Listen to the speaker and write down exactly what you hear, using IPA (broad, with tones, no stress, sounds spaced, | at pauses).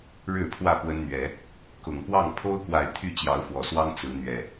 ɻ ɻ̩˥˨ pʰ w ä˥˨ p w ə˦ n n̪ ɥ ɛ˨˦ | k ʊ˨˩ ŋ p w ɑ˥˨ ŋ pʰ o˦ ʊ̯ k w a˨˩ ɪ̯ t̪ʰ y˥˨ t͡ɕ j ɑ˨˦ ʊ̯ f w ɔ˨˩ s w ɑ˦ ŋ t͡s ɹ̩˨˦ n̪ ɥ ɛ˨˩